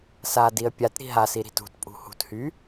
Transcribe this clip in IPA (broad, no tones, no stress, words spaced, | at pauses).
sadiə̯ pʲat ɾi̤ɦasi ɾi̤tṳtpʼṳ hṳthy